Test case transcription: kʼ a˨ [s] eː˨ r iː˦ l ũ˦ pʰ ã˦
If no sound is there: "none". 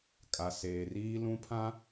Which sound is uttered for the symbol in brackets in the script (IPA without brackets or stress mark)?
s